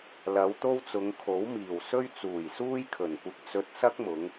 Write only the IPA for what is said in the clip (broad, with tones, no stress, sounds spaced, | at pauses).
l ɐ˨˧ w t̪ o˥ w t͡s ʊ˨˧ ŋ kʰ o˨˥ w m iː˨˩ w s ɵ˥ ɥ t͡s uː˨˩ j s uː˥ j kʰ ɵ˨˩ n kʷ ɪ˧ k̚ t͡s ɵ˧ t̚ s ɐ˥ k̚ m ʊ˨˧ ŋ